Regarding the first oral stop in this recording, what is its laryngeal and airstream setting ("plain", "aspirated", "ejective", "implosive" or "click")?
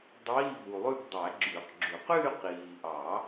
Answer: plain